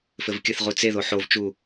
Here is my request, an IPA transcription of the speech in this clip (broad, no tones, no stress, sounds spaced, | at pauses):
f ɘ v kʲ ɘ θ ʁ u t͡s e ð o ħ o v t͡ʃ u